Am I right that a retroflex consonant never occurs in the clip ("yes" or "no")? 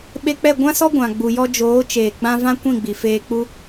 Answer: yes